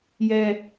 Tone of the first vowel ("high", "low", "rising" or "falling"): high